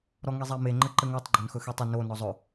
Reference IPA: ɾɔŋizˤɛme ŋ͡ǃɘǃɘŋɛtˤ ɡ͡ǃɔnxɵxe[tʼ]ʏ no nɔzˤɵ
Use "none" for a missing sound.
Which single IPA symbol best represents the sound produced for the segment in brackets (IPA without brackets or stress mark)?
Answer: tˤ